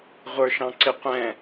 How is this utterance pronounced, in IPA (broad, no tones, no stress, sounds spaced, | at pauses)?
ʁʷ ə˞ ʃ ɑ̃ ǀ ɪ qʷ ɛ̃